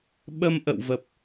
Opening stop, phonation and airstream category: implosive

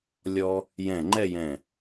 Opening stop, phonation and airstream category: click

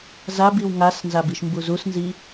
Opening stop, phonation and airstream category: plain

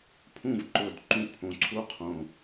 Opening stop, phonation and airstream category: aspirated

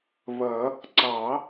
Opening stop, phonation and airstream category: click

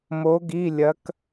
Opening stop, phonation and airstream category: plain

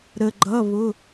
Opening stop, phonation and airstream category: click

